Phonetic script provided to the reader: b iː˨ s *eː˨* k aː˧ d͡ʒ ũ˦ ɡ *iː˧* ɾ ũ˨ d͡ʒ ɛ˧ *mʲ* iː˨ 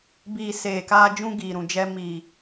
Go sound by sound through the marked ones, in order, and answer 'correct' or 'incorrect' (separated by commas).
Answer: correct, incorrect, incorrect